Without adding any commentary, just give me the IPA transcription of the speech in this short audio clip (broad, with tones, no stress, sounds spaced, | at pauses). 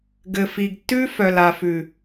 ɡ ɘ˨ f i˨ ɡ tː ʉ˦ f œ˨ l a˨ f ʉ˨